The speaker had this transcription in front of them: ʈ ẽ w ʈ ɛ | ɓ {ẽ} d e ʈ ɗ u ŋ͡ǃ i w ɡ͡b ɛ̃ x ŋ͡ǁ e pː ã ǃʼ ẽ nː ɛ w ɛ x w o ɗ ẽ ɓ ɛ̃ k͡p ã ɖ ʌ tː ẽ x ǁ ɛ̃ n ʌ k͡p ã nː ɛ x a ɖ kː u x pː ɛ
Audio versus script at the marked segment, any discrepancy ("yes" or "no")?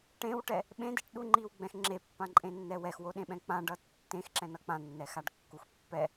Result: no